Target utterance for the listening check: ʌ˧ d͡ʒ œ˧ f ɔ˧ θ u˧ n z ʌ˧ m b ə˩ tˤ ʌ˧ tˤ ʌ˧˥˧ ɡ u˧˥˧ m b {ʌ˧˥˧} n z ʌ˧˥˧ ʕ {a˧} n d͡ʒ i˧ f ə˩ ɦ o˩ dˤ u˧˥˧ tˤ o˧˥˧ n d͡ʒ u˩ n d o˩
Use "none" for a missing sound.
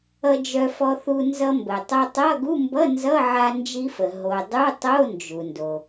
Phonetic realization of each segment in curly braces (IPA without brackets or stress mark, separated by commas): ʌ˧˥˧, a˧